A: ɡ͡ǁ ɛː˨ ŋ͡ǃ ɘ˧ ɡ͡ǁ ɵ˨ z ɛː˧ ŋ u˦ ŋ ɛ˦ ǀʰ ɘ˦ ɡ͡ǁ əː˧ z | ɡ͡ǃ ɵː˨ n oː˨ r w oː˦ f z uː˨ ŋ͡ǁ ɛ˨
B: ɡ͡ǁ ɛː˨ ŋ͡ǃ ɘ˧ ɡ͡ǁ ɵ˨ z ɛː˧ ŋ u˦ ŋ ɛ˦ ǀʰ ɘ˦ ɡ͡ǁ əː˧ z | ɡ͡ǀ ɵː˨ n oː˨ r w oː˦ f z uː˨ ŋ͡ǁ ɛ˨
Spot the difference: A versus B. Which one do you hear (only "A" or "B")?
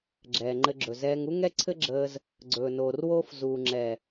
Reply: B